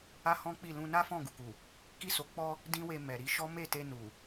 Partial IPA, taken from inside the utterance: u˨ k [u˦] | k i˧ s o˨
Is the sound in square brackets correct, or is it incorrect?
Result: incorrect